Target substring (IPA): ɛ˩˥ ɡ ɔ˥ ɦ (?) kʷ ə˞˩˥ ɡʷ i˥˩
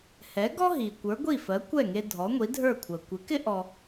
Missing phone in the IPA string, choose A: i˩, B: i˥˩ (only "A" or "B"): A